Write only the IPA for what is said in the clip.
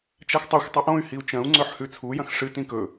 t͡ʃaxtˤoxʷ tˤuʔõy̯ hiu̯t͡ʃɐ̃u̯ŋ͡ǀɵħ hʉt͡sʰujɐ̃x ʂɨtĩ kɵ

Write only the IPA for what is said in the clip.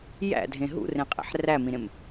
jæ̰dʱẽ ɦṵrẽqʼḛħ ræmĩɾẽm

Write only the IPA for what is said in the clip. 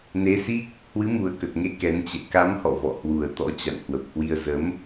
ne˨˦si˦˥k̚ | hwɨ˨˦mu˨˩ə̯kə˨˩t̚ŋe˨˦ kɛ˨˦nt͡ɕɛ̰˧˨ ka˨˦mhɔ̰˧˨ vɔ̰˧˨hwu˨˩ə̯t̪ɔ̰˧˥ t͡ɕa̰˧˨nhwə˨˩p̚hwi˧ə̯ zə˨˦m

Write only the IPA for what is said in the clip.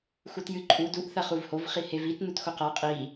xutjɨ ǃʼu duʔ θɐχuvhov χihevit nutxoqa qʼi

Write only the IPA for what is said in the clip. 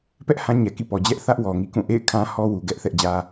pɛ˦ʔ hã˦ɲɛ˨kḭ˦˨pɔ˨ d͡ʑɛ˦ʔθä˦ʔ wɔ˨ŋḭ˦˨kũ˦˨ ʔḛ˦˨ɪ̯ kʰã˦hɔ˦wu˨ɡɛ˦ʔ θɛ˦ʔd͡ʑä˦

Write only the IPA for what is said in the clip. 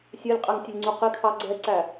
sʲɜlʲqʼæŋtʲʊlʲŋ͡ǀu qɪkʰɑ ɡ͡ǀɛǀæ

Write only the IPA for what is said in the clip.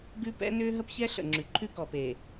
ɡʉ˦pɛ̰˦ nʏː˦ɦə˦pçɛ˦ ɬə̰˨ŋ͡ǁʉ˨ ǃʰʉ˦kɔ˨peː˨

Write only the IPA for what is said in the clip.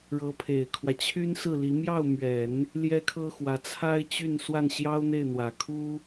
ɻɤ˧˥pʰe˨˩ɪ̯kʰwä˦ t͡ɕʰy˥nsɹ̩˥˩li˧˥ mjɑ˥˩ʊ̯mɥɛ˨˩˦n | ljɛ˥kʰɤ˥xwä˧˥ t͡sʰa˥ɪ̯ t͡ɕy˥˧n swa˥˩nɕjɑ˥ʊ̯n̪e˥˩ɪ̯n̪wä˨˩ kʰu˥

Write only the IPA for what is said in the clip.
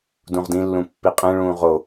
dũʁdĩlːũ pːiqʼẽɭũː ʁo

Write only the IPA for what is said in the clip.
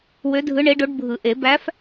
wø˧˥dʱɯ˧˥ ɳe˧˥ɖo˧˥ɖbʱɯ˨˩˦ʔe˨˩˦ bæ˧˥f

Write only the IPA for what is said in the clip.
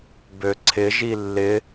bøǀʰɪ ʒilːɪ

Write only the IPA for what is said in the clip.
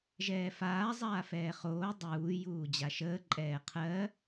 ʒɛːfaː zˤaːfɛːχoː dˤuː juːd͡ʑaʃəː ǃʼɛːqʰɜ

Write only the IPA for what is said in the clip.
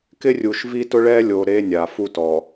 kɪ˦rʲu˨ʃvi˦tʊ˦ ɭɛ˦lʲo˨ ɾe˦nʲa˨ fu˦tɔ˨

